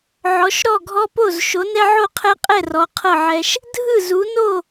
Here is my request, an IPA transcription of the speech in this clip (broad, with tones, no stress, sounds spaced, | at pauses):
ʕ ɔ˨˦ ʃ ɾ ɔ˥˨ ɡʱ ɔ˦ p o˥˨ z ʃ o˨˦ n ɛ˦ ʕ o˥˨ qʰ ɛ˦ qʼ ɛ˥˨ r ɔ˨˦ qʰ ɤ˥˨ ʕ ɛ˦ ʃ | dʱ ɯ˥˨ z u˨˦ n o˥˨